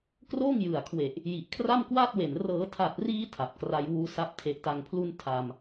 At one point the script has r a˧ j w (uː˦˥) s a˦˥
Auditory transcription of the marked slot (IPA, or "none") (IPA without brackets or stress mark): uː˦˥